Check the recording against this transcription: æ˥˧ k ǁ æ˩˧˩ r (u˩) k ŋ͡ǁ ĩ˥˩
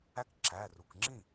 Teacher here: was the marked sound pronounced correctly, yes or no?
yes